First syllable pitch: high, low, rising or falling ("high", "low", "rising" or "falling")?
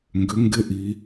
rising